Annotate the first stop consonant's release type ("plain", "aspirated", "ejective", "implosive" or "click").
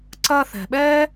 click